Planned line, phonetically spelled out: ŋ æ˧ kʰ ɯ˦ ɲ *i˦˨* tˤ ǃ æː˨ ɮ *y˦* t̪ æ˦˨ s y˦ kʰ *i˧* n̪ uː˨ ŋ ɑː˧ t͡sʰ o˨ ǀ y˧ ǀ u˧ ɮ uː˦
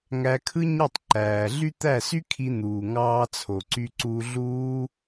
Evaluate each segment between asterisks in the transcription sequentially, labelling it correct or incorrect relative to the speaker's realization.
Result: incorrect: e˦˨, correct, correct

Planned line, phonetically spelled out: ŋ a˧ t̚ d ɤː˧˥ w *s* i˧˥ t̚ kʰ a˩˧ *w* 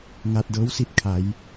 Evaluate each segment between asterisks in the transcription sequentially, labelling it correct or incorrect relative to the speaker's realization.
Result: correct, incorrect: j

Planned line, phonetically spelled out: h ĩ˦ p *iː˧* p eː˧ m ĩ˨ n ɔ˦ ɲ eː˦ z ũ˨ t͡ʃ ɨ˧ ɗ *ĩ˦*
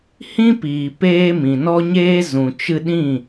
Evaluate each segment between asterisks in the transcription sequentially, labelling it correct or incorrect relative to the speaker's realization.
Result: incorrect: iː˨, incorrect: ĩ˦˨

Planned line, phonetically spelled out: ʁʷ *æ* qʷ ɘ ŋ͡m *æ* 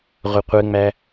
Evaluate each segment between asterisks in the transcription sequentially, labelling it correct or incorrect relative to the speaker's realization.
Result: incorrect: ə, correct

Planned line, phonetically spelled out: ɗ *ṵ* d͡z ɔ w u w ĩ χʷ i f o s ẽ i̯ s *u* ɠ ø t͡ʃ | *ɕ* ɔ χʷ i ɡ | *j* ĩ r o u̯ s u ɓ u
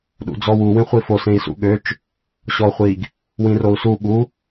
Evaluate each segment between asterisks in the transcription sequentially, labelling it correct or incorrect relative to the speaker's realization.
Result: correct, incorrect: ṵ, correct, incorrect: w

